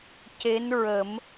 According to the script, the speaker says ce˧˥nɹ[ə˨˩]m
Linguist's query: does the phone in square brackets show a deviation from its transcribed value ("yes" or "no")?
yes